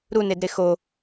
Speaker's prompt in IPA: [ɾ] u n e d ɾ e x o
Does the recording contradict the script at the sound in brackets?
no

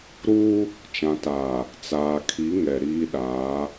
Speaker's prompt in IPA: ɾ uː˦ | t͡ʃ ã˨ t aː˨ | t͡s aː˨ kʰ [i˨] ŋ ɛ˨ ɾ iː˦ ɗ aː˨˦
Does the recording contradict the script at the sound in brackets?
yes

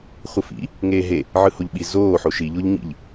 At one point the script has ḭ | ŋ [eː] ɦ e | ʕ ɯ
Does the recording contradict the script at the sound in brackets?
no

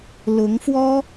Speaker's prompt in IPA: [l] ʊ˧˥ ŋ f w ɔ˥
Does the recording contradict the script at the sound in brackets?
no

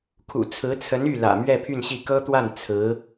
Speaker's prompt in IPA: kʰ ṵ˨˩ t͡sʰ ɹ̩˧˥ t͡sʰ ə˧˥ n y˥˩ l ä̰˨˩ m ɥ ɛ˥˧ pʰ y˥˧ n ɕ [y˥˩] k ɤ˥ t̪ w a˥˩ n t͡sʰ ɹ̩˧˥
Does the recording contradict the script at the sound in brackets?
yes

